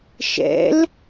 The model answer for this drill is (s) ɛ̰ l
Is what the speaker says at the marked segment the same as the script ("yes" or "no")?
no